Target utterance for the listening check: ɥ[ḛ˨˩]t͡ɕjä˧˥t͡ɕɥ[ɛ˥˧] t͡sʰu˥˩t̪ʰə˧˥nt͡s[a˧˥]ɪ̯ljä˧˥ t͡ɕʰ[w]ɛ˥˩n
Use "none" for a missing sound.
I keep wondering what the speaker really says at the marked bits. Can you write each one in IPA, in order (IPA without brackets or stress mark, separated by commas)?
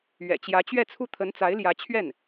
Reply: ɛ̰˨˩, ɛ˥˧, a˧˥, ɥ